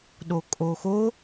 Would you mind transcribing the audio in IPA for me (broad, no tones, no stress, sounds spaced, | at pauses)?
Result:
ɗ o kʼ o x o